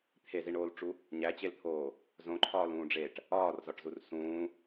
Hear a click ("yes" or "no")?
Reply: yes